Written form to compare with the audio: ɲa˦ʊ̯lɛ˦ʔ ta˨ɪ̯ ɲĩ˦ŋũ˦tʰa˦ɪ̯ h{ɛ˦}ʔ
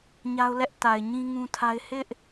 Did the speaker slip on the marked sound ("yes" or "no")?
yes